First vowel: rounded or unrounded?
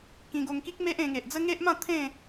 unrounded